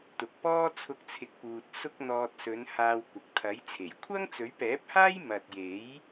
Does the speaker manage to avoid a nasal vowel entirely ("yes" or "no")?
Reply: yes